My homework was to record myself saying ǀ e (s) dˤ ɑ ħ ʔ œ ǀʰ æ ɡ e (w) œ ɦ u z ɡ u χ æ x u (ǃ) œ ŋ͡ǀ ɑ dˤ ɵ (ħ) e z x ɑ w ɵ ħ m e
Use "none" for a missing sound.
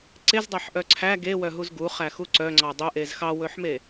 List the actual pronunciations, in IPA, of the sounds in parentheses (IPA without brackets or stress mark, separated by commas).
z, w, ǀ, ʔ